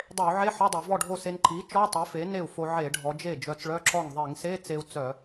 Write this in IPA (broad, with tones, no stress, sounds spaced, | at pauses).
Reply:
dˤ e˧˩˧ u̯ ʕ e˧˥˧ ħ ɔ˧˥˧ dˤ e˧˩˧ v ɔ˥˩ ɖʱ o˥˩ s e˧ n ǃ i˩˥ t͡ʃ ɔ˧˥˧ tˤ e˩˥ f e˩˥ n e˥˩ u̯ f o˧ ʕ e˧˩˧ ɖʱ ɔ˩˧ d͡ʒ e˥˩ d͡ʒ œ˧ t͡s ɭ œ˧˥˧ ǁ ɔ˥˩ ŋ ðˤ i˧˩˧ ŋ s e˧˥˧ t͡s e˧ u̯ t͡s œ˧˩˧